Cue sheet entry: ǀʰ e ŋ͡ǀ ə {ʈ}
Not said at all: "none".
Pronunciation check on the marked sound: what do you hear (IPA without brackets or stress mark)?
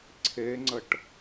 ʈ